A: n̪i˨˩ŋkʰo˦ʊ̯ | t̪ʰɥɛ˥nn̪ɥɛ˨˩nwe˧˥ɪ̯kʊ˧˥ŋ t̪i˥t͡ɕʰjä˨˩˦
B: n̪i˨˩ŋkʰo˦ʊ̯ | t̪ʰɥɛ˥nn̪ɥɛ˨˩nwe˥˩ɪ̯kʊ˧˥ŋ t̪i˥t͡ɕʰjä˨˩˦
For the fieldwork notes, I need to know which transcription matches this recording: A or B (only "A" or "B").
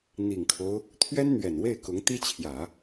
B